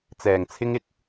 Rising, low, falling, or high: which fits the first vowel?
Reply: low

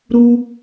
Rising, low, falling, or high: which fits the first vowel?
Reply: high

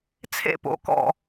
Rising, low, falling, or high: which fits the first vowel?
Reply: falling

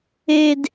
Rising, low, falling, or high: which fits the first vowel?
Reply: high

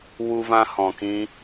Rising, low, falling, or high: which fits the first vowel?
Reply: high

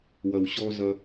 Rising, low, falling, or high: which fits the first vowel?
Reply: low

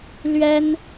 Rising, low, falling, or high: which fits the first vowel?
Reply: high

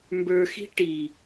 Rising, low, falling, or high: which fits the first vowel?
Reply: low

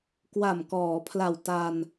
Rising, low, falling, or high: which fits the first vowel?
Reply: low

